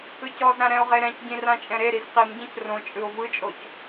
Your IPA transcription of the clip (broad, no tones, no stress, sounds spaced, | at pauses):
ɯ c ɔ z ɾ ã ɾ ɛ̃ o̯ ʁ e ɾ ɛ̃ c ɟ ĩ r ã t͡ʃʼ ɛ̃ ɾ e ɾ i z q i m ɟ ɛ̃ c r õ t͡ʃʼ ɯ o̯ v ɯ t͡ʃʼ o c